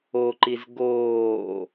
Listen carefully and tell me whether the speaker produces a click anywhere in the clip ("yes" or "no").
yes